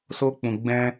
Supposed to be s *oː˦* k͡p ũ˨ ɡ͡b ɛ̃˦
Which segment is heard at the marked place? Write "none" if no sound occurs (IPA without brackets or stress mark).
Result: oː˦